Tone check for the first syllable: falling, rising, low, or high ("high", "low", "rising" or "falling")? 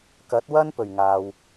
rising